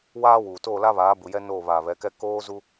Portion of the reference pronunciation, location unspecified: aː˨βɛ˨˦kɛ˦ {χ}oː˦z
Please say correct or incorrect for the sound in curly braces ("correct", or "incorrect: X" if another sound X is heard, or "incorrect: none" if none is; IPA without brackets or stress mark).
incorrect: k